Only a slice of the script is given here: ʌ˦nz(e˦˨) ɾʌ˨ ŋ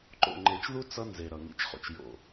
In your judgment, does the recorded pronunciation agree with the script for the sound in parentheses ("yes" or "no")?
no